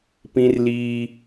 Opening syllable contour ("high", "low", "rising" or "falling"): high